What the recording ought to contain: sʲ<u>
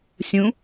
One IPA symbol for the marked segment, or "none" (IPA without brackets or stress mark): ũ